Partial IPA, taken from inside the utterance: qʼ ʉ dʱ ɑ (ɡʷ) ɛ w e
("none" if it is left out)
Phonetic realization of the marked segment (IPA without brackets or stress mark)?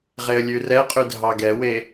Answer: ɡ